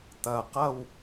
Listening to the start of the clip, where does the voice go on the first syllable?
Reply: low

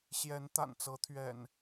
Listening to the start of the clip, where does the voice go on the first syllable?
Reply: rising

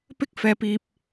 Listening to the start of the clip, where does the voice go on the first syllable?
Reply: high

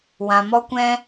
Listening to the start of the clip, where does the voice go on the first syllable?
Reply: low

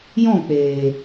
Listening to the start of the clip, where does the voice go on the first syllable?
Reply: falling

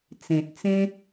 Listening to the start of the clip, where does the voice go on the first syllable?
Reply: low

